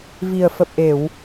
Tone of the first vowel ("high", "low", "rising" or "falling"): low